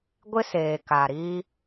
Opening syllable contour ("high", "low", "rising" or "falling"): high